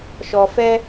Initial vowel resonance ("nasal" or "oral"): oral